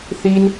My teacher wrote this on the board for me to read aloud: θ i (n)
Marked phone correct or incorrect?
correct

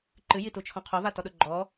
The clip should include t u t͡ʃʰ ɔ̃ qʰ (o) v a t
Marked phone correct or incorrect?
correct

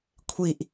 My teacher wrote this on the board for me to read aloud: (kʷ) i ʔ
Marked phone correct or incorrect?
incorrect: kʷʰ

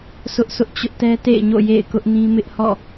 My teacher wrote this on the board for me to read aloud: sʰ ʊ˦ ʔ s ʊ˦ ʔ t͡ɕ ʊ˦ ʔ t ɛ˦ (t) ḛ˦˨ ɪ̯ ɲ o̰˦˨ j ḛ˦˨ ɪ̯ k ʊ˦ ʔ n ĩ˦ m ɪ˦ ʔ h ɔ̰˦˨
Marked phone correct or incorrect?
correct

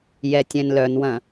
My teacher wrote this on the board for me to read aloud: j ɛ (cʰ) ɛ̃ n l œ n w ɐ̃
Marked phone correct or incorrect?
incorrect: tʲ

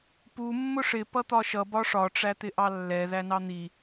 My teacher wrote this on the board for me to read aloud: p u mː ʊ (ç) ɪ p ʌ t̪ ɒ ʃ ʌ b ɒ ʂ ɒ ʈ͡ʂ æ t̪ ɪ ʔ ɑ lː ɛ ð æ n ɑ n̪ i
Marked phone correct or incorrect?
incorrect: ʂ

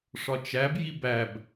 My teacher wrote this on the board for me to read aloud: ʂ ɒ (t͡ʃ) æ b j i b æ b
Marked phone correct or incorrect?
correct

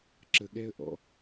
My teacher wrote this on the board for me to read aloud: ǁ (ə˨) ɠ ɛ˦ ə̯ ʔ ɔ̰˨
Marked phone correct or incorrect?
correct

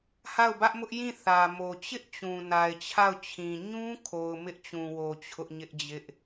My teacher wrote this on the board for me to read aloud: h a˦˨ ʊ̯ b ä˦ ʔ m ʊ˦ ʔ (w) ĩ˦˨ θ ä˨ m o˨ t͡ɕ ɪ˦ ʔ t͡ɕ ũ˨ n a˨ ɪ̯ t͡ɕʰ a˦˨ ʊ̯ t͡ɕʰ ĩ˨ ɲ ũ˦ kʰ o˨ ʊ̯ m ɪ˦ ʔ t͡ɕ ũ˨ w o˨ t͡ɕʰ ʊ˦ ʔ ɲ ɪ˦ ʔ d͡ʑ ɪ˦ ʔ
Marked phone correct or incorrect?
incorrect: j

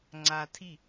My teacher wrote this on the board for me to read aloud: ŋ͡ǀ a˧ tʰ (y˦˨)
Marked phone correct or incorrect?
incorrect: i˦˨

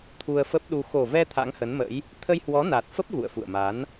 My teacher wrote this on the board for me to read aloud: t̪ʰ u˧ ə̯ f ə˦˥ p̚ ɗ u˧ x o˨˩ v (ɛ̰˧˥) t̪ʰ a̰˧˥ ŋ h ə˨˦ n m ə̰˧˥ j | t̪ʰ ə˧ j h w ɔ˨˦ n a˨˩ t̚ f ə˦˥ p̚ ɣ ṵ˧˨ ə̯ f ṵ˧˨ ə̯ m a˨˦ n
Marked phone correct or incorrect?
incorrect: ɛ˧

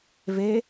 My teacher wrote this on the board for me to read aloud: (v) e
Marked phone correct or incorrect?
correct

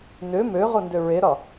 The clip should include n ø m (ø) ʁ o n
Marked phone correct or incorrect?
correct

